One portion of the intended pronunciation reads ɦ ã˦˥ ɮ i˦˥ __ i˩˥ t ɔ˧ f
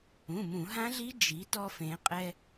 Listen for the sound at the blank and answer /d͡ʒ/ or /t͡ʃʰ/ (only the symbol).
d͡ʒ